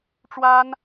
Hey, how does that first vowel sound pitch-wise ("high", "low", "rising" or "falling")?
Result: high